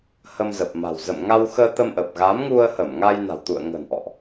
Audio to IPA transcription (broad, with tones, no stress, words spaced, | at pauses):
hə˧mzə˨˩p̚ma̤˨˩w zə̰˧˨mŋa˧wxəː˧ t̪ə˧mʔə˨˩p̚ ɣa˨˦mŋu˧ə̯hə˧˩m ŋa˧jna̤˨˩wt̪ṵ˧˨ə̯ŋə̤˨˩n ʔɔ̰˧˨ʔ